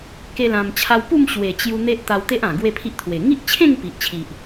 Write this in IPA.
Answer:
k e˦ l ã˧ m t͡ɕʰ a˦ w p u˥˧ m ɕ w e˨˩ t͡ɕ j u˧ n̪ e˦ ʔ t̪ a˧ w t̪ e˦ ʔ ã˨˩ ɡ w e˥˧ pʰ i˦ ʔ t̪ʰ w e˨˩ ŋ i˦ ʔ t͡ɕʰ ẽ˥˧ ŋ p i˨ ʔ t͡ɕʰ i˨ ʔ

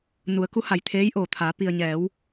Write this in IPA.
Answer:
n u˩˧ ə̯ k u˧˥ h a˩ j t̪ʰ eː˧˥ j ʔ oː˩ t̪ʰ a˩˧ p i˩ ə̯ ɲ ɛː˩˧ w

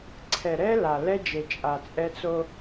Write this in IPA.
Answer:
ǀʰ ɛ˨ ɾ ɛ˦ l a˨ l ɛ˦ d͡ʒ e˨ t͡ʃʼ a˨ t͡sʼ ɛ˦ t͡s o˦

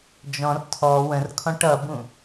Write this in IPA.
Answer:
d͡ʒ ɔ̃ r tʰ ɔ w ə̃ r kʰ ɔ̃ ʈ ʌ b ũ

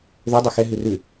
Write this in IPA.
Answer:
ð ɵ dˤ i x ɛ ɦ ʉ r ʉ

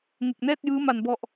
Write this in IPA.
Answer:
ŋ e˨˩ k̚ n ɛː˥˩ t̚ j ɯː˦˥ m a˨˩ n b ɔ˨˩ ʔ

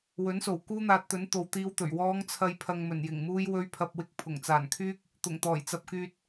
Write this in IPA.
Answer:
w ɵ˨˥ n s o˨˩ w k uː˥ n̪ aː˧ t̚ t̪ ɵ˨˥ n t̪ o˨ w t̪ iː˧ w t̪ ɵ˨˩ ɥ w ɔː˨˧ ŋ t͡sʰ ɐ˨ j pʰ ɐ˨ ŋ m ɵ˨˩ n j ɪ˨˩ ŋ m uː˧ j w ɵ˧ ɥ pʰ ɐ˨ p̚ w ɪ˧ k̚ pʰ ʊ˨˩ ŋ t͡s aː˨˩ n kʰ yː˥ k̚ | t̪ ʊ˨˩ ŋ t̪ ɔː˨˩ j t͡s ɐ˨ p̚ k yː˨ t̚

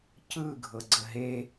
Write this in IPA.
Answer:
c ɯ ɡʱ ɤ ɡ͡ǀ ə ɦ e

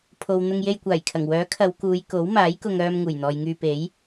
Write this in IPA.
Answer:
pʰ o˨ w n̪ ʊ˧ ŋ j e˧ j kʷ aː˨˩ j kʰ ɐ˨˩ ŋ w œː˨˥ kʰ ɐ˨˧ w k uː˨˧ j k o˨˥ w m aː˨˥ j k ʊ˧ ŋ œː˧ m ŋ uː˨˩ j n̪ ɔː˨ j ŋ yː˧ p e˨˥ j

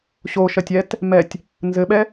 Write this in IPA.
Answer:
ɕ o ʃ ɐ tʲ ɛ t | m ɛ tʲ | n z ɘ ɓ ɛ

